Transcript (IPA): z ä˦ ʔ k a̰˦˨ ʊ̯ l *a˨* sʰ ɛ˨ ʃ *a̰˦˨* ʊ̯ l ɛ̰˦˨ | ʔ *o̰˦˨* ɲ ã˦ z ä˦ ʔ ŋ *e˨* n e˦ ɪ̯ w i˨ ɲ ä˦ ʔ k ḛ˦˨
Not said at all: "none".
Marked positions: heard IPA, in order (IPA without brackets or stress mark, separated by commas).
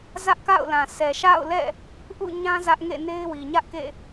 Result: ã˨, a̰˦˨, ṵ˦˨, ḛ˦˨